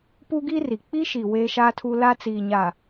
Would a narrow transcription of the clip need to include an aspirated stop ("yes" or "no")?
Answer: yes